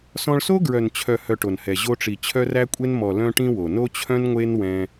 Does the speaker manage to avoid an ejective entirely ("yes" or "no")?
no